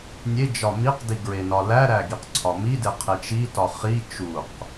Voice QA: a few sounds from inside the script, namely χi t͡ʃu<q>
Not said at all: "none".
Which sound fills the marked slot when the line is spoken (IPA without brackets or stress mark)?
q